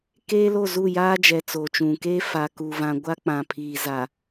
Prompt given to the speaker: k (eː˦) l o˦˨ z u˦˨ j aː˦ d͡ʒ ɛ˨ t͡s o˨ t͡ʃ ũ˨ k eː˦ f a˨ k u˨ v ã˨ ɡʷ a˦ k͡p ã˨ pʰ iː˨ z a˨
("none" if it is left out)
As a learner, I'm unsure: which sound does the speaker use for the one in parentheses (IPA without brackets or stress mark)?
eː˦